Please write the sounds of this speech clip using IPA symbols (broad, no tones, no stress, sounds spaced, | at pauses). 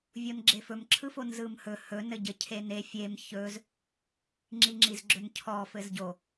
vʲ o n ɡ͡ǁ e f ɵ m ǁʰ ɯ f o n z ɯ m h ɵ h ɵ n ɘ ɟ ɘ cʰ e n e fʲ e m ç ɵ z | ŋ͡ǁ i ŋ͡ǁ i z ɡ͡ǁ ɵ n cʰ ɔ f ɘ z ɟ o